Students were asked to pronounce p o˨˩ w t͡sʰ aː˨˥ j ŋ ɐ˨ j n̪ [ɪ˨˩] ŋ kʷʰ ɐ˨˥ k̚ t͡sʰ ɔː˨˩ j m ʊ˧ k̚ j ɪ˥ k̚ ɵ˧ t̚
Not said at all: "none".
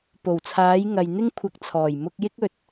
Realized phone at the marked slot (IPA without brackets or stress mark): ɪ˥